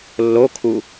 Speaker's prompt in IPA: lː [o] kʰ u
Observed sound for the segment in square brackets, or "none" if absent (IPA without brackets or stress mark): o